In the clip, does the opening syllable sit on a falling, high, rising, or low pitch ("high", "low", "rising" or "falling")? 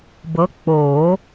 rising